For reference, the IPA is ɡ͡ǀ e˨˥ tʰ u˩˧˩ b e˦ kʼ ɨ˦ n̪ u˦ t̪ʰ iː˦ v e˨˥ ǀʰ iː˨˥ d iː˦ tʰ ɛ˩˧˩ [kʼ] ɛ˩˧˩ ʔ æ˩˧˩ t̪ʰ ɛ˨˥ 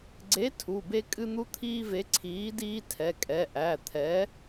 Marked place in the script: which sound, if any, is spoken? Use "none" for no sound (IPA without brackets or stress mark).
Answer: kʼ